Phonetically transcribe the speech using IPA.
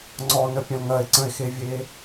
ŋ͡ǀ ɔ n ə pʲ ɐ̃ l ŋ ɐ e̯ ǀ ə̃ e̯ x e vʲ eː

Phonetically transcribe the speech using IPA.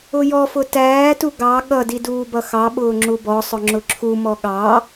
ʊ j ɔ f ʊ t æː t u ɡ ɑ ɠ ʌ d i d uː b ʌ x ɑ ɓ ʊː ŋ͡ǁ u b ɔ sˤ ʊ ŋ͡ǁ ʊ ǁʰ u m ɔ ɠ ɑ

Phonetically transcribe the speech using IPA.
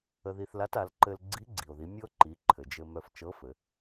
ə˧ ð i˧ θ l a˧˥ t a˩˧ l ǃ ɘ˧ l ɡ͡ǀ i˧˥ ɡ͡ǀ i˩ o̯ ð i˩˧ mʲ ɤ˥ ǃ i˩˧ ǃʰ ɘ˩ d͡ʒ ɘ˧ m œ˧ f t͡ʃ ɤ˧˥ f ɘ˩˧

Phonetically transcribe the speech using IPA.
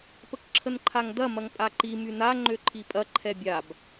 p ə k ǁʰ ə n ǃʰ a ŋ d ɐ m ɐ ŋ pʼ a ǃ i m y n a ŋ͡ǃ ø ǃʰ i pʼ ɐ ǃʰ ɛ bʲ a b

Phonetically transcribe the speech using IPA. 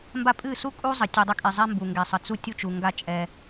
m b a˦ pʼ ɨ˦˨ s u˦ kʼ u˦ zˤ ə˨ tʲ ɨ˨ dˤ ə˦ kʼ i˨ zˤ ɛ˦ m b u˨ ŋ ɡ ɛ˨ sˤ ə˨ t͡s u˦ tʲ u˦ t͡ʃ u˨ ŋ ɡ a˦ t͡ʃʼ ɛ˦

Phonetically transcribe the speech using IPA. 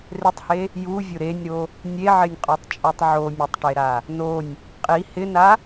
r ɪ tˤ h e | j u vʲ ʊ ɾ e nʲ ɾ o | nʲ e ʕ ɪ nʲ qʼ ɔ tˤ t͡ʃʼ o tˤ ʕ o mʲ o tˤ ʈ e ɾ a | n o nʲ | qʼ i h ɪ n a

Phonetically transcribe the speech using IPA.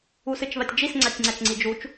u s ɨ t͡ʃ β a tʲ d͡ʒ i s ŋ͡ǀ a tʲ ŋ͡ǀ a t͡ʃ ŋ͡ǀ i d͡ʒ u t͡ʃ

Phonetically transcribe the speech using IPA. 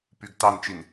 p y ɡ t ɑ n t͡ʃ i n

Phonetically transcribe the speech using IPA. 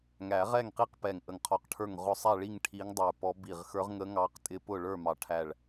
ŋ æ˨˩˦ ʁ ɛ˥˨ ŋ q i˥˨ q p ɛ˧˩ ŋ ʔ ə˧˩ ŋ qʰ ɔ˧˩ q ʈʰ ə˞˥˨ ŋ ʁ ʊ˧˥ sˤ æ˥˨ ɭ i˥˨ ŋ ʈʰ i˧˥ ŋ dˤ ə˞˧˩ p ɔ˧˥ b i˧˩ ʁ x ə˞˧˥ ʁ ŋ ə˧˥ ŋ ɑ˧˥ q tʼ ɪ˧˥ p ʊ˥˨ ɭ ə˞˥˨ m ɑ˨˩˦ ʈʰ æ˧˩ ɭ

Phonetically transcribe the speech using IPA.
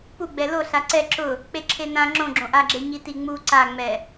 p u ɡ͡b ɛ l o ɬ a ǀ ɛ ǁ ʊ | k͡p e ǁʰ e n ã ŋ͡ǁ õ ɡ͡ǁ õ ʔ a ɡ͡ǁ e ɲ i t i ŋ͡m u ǀ a ŋ͡m ɛ

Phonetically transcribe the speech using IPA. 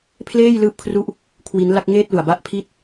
pʰ l eː˥˩ j l ɯː˦˥ p̚ kʰ r u˦˥ ʔ | kʰ w i˦˥ n l a˥˩ k̚ ŋ eː˥˩ t̚ l u˨˩ a̯ b a˦˥ ʔ pʰ i˥˩ t̚

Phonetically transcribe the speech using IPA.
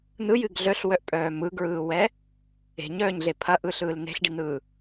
n̪ ɯ j ɨ ɡ ɮ œ ɬ w œ ʔ pʼ œː m ɯ ɡ ɹ ɯː w ɛ | e̤ ɲ œː ɲ ɮ e pʰ ɐ ʔ ɯ ɬ ɯː l n̪ e̤ ɬ ɖ i n̪ ɯː

